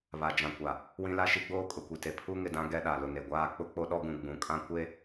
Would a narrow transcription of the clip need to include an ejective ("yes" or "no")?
yes